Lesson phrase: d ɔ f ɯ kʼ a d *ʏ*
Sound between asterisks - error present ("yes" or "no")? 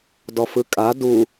yes